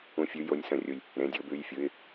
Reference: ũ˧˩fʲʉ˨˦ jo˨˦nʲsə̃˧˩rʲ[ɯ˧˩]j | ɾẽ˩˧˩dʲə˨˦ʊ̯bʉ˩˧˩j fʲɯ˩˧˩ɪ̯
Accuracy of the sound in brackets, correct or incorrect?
incorrect